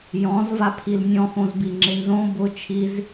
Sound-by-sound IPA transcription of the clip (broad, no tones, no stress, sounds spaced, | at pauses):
j ɔ̃ z v a pʰ i l nʲ ɔ̃ x õ z b i ŋ͡ǁ ɪ n z õ b ʊ t͡ʃʰ i z